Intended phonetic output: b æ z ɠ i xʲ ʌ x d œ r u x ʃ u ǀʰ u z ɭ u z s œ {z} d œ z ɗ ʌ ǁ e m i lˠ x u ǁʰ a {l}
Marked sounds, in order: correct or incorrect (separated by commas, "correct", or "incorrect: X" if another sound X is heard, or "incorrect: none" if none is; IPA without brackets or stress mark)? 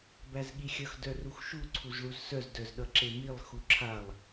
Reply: correct, incorrect: lˠ